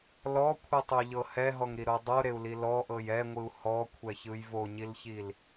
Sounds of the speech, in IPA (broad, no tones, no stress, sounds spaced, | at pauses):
l ɔ kʷʰ ɯ tˤ u ʎ ɤ h ɛ ɦ ɔ ŋ ɾ i ɾ o dˤ o ɾ e u̯ l i l ɔ ʔ ɤ j ɛ ŋʷ ɯ u̯ h ɔ kʷʰ ɛ ç ɯ j v o ɲ i l ç i l